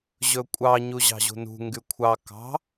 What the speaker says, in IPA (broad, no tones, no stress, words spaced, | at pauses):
ʑɵkʷʼɑ ɲuʑɑ̤ʑṳnṳ ŋɡykʷʰɑ kɑ̤